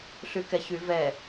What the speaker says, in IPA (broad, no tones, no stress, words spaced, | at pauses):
ɬykɛçy vɛ